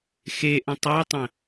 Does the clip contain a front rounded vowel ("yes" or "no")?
no